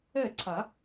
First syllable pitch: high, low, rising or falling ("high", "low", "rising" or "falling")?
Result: falling